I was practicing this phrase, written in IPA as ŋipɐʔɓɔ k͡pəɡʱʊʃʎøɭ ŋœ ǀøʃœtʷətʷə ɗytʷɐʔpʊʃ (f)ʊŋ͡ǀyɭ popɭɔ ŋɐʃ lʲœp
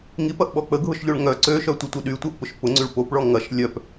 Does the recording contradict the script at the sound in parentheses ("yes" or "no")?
yes